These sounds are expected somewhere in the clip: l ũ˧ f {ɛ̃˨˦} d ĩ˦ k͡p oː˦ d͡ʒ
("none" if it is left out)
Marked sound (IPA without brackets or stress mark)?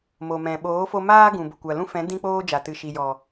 ɛ̃˨˦